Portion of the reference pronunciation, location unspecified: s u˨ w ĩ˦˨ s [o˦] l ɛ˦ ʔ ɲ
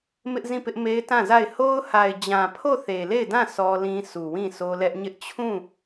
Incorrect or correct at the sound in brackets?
correct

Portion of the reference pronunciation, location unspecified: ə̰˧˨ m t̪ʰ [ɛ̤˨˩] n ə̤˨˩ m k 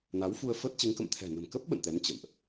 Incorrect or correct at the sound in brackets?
correct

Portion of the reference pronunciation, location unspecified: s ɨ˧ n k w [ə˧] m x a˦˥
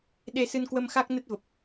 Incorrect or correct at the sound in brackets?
correct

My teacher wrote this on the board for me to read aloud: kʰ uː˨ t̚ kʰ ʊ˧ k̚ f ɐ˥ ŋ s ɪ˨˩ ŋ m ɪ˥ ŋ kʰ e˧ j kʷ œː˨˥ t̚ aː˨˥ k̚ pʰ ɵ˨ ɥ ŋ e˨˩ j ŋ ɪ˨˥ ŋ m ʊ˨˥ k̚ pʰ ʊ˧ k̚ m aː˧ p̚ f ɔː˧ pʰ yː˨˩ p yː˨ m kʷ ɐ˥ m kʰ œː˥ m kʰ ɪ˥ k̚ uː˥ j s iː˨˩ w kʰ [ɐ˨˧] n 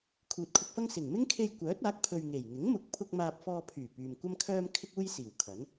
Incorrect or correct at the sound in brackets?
incorrect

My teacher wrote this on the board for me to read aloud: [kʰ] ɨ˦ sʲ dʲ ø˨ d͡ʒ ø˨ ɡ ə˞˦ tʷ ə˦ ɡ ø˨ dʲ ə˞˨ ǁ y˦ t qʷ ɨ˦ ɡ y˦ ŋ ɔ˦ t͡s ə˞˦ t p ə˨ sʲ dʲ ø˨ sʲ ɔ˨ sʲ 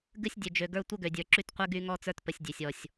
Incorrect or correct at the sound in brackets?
incorrect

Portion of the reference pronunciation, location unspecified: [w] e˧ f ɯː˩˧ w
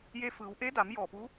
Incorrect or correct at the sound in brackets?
incorrect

